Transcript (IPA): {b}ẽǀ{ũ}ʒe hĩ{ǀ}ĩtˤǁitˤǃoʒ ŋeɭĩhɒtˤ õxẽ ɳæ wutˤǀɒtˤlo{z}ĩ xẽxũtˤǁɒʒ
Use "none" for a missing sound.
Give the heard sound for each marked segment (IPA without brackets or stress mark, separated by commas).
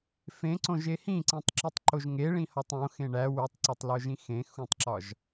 f, õ, ǀ, ʒ